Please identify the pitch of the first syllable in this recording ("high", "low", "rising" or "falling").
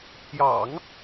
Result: low